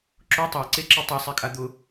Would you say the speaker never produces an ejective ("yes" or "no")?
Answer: no